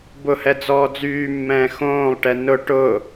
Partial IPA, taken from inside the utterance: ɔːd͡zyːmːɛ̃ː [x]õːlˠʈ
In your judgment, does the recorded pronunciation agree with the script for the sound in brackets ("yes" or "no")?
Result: yes